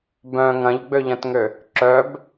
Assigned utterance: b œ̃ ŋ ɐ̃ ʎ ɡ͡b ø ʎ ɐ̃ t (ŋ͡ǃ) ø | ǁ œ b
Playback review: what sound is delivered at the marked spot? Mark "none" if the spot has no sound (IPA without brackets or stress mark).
ŋ